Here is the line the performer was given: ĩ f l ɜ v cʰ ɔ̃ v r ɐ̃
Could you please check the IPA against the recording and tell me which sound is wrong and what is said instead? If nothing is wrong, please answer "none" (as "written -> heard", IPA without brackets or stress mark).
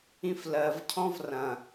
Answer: none